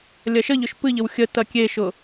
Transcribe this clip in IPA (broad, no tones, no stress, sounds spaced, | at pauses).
lʲ ɐ ʃ ə ʎ ʊ ʃ p ɨ ʎ ə w xʲ ə t ɐ kʲ e ʃ ʊ